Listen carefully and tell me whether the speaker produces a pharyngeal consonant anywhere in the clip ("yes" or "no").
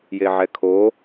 yes